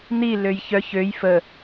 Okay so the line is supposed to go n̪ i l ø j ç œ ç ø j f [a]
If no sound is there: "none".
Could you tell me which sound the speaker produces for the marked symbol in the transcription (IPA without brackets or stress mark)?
ə